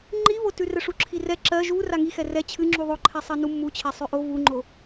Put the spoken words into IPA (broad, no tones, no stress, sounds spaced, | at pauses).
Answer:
ŋ͡ǃ i β o t ʉ r ɛ ʂ u ǁʰ i r ɛ ǁ ɜ ʒ u r a ŋ i x ɛ r ɛ t͡ɕʰ ɨ ŋ͡ǁ u ðˤ o ǃʰ ɛ sˤ ɜ n u mː u t͡ɕʰ ɛ sˤ ʉ ʔ o v u ŋ͡ǃ o